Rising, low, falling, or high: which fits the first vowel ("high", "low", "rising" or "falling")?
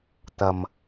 low